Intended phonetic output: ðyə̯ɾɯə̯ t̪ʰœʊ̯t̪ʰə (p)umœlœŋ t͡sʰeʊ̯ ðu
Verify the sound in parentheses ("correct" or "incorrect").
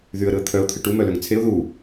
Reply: incorrect